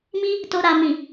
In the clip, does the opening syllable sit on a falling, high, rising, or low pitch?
high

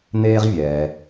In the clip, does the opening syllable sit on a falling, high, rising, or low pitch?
high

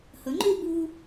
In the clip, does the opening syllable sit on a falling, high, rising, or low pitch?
rising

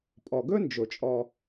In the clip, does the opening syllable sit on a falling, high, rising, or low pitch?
low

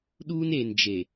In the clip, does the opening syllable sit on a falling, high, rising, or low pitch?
high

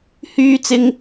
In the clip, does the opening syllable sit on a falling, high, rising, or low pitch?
high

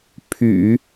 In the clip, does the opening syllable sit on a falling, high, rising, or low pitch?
low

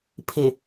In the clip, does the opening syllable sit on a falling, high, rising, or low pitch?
low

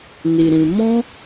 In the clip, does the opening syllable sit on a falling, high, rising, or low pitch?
low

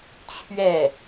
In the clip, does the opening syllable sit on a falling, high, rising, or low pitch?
falling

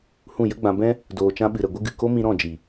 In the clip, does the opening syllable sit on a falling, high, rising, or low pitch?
falling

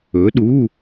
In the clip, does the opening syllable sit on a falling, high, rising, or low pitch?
rising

